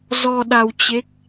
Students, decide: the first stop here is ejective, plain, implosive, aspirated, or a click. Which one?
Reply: implosive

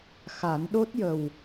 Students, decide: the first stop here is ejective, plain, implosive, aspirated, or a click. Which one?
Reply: implosive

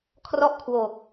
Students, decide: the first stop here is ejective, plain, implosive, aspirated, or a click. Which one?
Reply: aspirated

